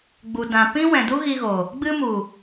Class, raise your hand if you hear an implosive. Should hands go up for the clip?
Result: no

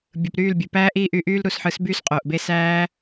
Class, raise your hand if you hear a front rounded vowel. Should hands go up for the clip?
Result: yes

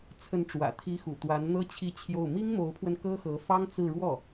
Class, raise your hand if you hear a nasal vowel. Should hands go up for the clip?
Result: no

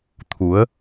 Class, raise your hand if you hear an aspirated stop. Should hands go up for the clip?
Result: yes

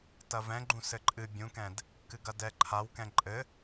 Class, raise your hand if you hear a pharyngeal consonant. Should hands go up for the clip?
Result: no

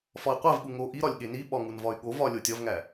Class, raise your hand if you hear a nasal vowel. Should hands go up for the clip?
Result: no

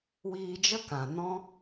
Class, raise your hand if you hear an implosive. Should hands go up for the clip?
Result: no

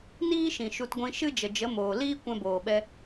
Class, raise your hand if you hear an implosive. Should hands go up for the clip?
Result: yes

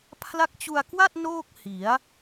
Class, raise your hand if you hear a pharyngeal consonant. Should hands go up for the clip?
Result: no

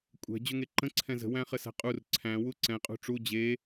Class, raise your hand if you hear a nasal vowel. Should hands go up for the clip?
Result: yes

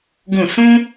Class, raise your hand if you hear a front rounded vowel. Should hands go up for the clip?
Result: no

